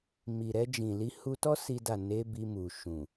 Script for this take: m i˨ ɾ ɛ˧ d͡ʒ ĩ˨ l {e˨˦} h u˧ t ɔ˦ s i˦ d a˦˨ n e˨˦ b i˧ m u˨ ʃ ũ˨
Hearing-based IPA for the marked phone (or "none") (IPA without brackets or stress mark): i˨˦